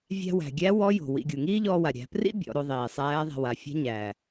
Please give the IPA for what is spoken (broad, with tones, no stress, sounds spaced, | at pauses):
vʲ æ̤˧ w æ̤˩ ɡʲ æ˧˥ w ɔ˧˥ j o̤˩ w ḭ˩˧ ɡʲ u˩ ŋ iː˥ ʎ ɔː˧ w a˩ ɾʲ æ̤˩˧ p r ḭ˥ bʲ ɔ̰˩˧ ɾ o˩˧ ðˤ iː˩ sˤ æː˧˥ ðˤ a̤˧ w a˩˧ fʲ æ̤˧˥ ɲ æː˩